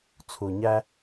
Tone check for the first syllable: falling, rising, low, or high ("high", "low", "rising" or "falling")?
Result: low